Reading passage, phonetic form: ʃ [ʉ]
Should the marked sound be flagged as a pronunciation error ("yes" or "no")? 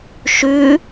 no